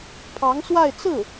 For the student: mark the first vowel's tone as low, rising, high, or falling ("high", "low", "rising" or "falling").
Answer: rising